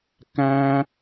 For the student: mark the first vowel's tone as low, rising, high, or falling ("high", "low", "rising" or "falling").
high